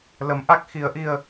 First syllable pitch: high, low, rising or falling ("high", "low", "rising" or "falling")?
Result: rising